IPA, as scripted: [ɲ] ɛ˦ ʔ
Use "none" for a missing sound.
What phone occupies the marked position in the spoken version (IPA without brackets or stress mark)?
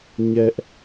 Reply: ɲ